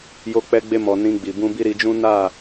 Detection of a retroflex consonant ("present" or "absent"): absent